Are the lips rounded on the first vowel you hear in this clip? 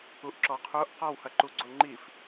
yes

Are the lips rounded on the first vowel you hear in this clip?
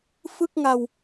no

